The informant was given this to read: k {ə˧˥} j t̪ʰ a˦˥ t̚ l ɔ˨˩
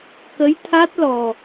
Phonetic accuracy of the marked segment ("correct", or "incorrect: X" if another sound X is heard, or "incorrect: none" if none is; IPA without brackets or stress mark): correct